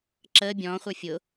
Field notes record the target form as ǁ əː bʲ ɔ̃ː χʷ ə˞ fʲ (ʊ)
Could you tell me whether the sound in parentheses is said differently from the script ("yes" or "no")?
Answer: no